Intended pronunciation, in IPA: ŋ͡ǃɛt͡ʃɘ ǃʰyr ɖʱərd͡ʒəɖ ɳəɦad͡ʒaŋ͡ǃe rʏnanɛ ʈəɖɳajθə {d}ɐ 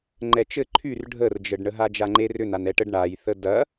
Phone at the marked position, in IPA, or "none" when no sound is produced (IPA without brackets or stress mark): d